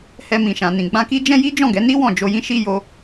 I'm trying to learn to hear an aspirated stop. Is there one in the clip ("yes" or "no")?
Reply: no